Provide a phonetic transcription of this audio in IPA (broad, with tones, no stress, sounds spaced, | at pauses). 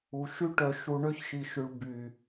u˩˧ ʃ y˥ ʈ œ˧˩ ʃ u˧ ɳ ø˥ ç ʃ i˧ ʃ y˧ ɭ b y˧˩